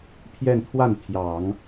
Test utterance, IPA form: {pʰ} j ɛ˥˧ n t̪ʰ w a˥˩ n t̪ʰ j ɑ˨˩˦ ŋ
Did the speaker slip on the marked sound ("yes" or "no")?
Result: no